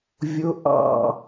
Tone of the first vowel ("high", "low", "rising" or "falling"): rising